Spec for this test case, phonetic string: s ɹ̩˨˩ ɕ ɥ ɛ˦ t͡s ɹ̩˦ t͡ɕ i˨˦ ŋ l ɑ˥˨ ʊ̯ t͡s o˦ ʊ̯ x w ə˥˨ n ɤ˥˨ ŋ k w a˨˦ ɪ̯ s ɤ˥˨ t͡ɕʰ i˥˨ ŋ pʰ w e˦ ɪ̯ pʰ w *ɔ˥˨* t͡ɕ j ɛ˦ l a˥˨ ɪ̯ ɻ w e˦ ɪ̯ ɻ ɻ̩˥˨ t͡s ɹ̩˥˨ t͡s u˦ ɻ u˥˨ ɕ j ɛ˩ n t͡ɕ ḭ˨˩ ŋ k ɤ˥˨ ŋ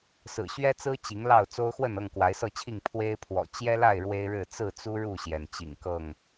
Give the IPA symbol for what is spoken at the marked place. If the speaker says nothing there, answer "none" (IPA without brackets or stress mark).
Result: ɔ̰˨˩